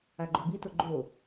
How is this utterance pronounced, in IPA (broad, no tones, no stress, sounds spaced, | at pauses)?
a ɡ͡ǃ o b i t ʊ ɡ͡ǃ o